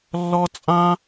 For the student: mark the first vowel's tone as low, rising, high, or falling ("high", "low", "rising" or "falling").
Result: high